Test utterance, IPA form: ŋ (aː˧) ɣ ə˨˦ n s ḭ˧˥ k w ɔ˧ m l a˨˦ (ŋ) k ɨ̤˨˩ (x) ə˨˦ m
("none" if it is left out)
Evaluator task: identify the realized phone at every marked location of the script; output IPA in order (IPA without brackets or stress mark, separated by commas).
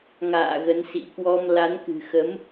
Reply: a̰ː˧˨, n, x